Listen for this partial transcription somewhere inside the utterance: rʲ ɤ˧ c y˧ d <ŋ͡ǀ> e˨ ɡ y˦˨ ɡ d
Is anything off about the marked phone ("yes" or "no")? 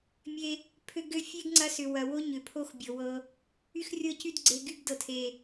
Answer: yes